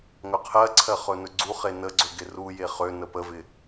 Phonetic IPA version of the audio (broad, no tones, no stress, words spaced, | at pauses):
ŋɵqʰɜǀʰɜ χɵnɵɡ͡ǀuχe nəɡ͡ǀɵ ɡɪruje χønə pəvɪ